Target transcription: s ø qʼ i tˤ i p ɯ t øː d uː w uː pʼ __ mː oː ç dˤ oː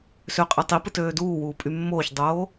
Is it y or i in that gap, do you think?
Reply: y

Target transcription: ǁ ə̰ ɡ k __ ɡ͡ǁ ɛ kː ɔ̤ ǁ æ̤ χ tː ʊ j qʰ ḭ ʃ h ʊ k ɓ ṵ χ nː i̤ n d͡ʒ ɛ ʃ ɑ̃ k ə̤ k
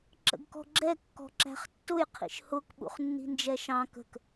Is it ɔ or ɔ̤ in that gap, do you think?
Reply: ɔ̤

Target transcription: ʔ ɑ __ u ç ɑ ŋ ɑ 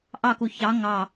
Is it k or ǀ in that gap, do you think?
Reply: k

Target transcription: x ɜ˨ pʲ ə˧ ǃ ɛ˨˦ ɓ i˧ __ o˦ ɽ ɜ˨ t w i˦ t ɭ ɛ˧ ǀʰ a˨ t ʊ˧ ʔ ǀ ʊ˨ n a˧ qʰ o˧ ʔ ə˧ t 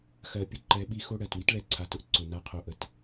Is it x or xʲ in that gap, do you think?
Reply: x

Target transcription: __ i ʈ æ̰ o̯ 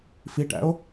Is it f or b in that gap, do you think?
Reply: f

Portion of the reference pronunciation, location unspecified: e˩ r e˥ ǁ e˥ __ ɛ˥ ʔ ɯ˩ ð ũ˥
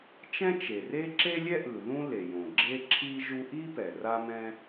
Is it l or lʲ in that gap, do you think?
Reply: lʲ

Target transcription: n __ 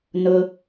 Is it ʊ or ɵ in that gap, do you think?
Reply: ʊ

